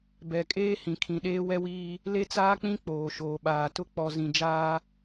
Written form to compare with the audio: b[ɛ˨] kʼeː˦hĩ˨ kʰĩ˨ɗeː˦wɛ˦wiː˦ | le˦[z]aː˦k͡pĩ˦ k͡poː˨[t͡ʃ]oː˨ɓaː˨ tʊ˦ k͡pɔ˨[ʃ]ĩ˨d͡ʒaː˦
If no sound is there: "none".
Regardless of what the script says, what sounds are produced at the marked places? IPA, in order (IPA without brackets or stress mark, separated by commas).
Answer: ɛ˨, t͡s, ʃ, z